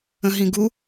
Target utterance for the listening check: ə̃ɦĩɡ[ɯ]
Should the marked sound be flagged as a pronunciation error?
yes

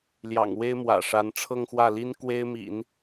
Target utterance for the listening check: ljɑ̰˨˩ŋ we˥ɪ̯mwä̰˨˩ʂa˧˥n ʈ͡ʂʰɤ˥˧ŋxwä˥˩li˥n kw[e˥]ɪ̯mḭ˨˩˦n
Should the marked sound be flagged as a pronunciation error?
no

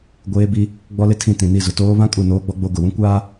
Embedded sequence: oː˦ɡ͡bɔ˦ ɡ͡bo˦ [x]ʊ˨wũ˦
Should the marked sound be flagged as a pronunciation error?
yes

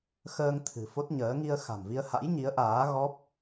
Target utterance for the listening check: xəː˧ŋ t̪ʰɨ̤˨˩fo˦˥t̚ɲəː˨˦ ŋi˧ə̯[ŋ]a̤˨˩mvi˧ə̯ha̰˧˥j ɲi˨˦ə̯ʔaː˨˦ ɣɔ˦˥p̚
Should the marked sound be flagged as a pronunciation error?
yes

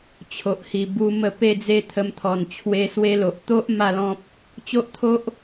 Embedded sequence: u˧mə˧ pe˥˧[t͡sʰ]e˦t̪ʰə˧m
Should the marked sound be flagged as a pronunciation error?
yes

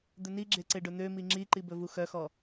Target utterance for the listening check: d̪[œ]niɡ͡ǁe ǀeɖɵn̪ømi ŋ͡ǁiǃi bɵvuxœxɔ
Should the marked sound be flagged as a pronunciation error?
yes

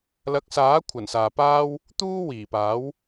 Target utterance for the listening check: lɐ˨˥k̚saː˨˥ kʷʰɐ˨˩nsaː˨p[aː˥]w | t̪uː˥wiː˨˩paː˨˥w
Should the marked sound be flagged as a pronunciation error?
no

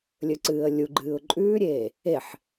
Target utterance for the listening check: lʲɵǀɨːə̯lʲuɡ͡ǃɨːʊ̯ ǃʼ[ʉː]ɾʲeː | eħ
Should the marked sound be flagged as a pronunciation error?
no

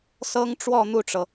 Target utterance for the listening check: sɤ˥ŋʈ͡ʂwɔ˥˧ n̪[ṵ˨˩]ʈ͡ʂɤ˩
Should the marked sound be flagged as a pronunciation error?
yes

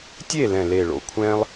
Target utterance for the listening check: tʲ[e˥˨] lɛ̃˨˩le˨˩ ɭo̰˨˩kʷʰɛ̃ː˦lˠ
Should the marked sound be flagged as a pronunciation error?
no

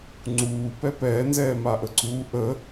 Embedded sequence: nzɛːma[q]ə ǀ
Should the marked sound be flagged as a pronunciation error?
yes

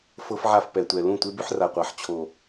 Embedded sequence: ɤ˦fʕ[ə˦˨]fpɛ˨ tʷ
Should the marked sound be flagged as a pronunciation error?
yes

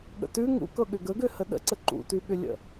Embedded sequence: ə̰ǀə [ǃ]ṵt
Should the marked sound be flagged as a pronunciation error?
no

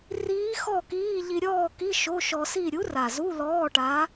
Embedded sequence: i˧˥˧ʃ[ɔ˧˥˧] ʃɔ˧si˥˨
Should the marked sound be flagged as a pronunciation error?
yes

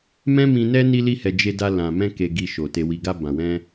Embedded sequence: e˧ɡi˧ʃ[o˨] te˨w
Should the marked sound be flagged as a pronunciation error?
no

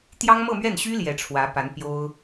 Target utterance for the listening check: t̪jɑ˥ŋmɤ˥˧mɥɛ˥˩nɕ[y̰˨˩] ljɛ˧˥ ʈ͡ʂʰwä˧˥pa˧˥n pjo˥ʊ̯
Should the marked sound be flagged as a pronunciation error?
yes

